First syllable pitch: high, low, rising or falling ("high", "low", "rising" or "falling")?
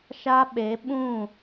high